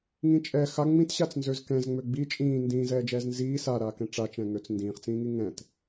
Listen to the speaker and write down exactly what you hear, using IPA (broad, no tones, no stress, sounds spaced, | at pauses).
ŋ ĩ t͡ʃʼ ɛ x a ŋ͡m ĩ t ɕ a t͡s n z ø z k ɛ̃ z ŋ͡m ø ɡ͡b i t͡ʃʼ ĩː n d ĩː z ɛː d͡ʒ ɛː z n z iː s a ɾ aː k ɛ̃ ʈ͡ʂ a t͡ʃ ɛ̃ ŋ ø t͡s n d ĩː χ t͡s ĩː ŋ i ŋ ɛ̃ t